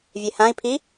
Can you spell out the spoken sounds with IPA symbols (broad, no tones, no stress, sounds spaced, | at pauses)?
vʲ e h ã i̯ pʰ i